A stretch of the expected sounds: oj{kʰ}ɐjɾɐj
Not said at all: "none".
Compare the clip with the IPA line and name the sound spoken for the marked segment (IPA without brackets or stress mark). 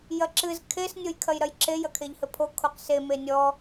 kʰ